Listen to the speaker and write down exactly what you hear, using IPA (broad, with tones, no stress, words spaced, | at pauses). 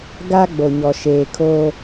ɡa˦ ɡ͡bo˨ɲɔ˨ʃeː˨kʰoː˦